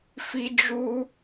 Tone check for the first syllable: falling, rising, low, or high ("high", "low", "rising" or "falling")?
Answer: high